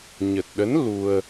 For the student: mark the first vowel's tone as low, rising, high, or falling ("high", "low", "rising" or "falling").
low